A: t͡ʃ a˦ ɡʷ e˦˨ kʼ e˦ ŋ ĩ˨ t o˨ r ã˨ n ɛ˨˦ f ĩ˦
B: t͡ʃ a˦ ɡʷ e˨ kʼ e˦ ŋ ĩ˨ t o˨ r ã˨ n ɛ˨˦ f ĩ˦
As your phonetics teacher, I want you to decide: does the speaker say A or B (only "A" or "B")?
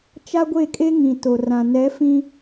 A